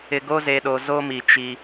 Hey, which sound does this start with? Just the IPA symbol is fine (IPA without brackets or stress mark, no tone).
ɪ